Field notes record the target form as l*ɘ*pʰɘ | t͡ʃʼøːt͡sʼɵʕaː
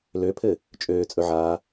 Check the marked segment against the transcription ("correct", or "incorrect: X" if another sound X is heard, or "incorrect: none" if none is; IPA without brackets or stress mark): incorrect: ø